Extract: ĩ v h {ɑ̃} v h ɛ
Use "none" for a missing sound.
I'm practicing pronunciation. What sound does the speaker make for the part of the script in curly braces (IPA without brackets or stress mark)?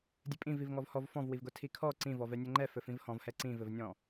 ɔ̃